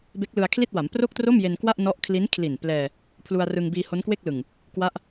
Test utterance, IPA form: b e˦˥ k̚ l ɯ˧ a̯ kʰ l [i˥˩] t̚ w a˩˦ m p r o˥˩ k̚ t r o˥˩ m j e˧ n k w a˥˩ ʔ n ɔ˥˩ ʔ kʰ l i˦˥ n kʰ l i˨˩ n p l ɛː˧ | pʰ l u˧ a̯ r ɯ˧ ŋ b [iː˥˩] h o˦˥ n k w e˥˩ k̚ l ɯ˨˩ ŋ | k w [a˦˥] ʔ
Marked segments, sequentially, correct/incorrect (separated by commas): correct, incorrect, correct